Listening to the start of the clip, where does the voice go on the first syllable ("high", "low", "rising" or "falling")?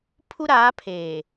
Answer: high